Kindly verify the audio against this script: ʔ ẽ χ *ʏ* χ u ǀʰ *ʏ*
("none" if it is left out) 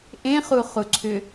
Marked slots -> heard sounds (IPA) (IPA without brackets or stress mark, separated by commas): u, ʏ